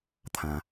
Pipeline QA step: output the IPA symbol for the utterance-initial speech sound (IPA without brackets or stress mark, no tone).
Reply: t̪ʰ